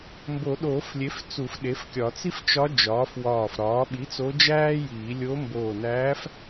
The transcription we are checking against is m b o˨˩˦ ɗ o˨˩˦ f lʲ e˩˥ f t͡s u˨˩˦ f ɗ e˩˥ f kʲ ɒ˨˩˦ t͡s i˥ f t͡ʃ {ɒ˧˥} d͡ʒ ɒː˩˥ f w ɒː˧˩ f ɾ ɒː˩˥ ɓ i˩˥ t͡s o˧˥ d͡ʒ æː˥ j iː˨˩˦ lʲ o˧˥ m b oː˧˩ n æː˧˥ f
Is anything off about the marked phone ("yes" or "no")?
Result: no